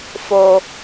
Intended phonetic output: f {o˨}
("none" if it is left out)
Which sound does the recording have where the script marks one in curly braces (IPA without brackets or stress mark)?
o˦